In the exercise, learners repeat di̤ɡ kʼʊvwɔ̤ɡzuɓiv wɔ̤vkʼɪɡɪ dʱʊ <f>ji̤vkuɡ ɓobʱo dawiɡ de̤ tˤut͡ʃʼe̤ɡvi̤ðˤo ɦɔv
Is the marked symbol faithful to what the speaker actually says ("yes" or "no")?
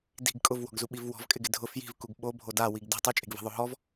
yes